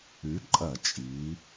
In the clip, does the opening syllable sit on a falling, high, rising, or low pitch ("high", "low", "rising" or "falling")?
rising